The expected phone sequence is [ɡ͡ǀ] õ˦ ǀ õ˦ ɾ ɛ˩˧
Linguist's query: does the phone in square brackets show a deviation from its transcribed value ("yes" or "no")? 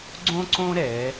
no